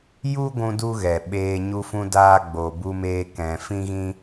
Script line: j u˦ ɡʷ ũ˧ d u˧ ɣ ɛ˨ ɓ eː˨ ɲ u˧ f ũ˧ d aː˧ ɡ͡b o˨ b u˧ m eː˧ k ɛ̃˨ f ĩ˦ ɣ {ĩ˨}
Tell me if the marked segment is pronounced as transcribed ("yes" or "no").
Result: no